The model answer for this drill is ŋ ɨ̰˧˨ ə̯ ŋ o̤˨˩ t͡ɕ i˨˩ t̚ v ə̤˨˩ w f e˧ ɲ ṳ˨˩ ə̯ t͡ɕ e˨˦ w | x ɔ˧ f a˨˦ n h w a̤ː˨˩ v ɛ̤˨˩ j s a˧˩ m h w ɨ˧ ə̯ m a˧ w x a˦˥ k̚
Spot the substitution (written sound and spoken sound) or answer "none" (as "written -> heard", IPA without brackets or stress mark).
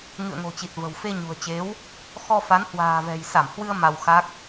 none